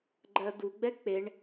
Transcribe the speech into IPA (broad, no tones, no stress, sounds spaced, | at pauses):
ɡ͡ǃ ɜ d̪ u ɡ͡b ɛ k͡p e ɳ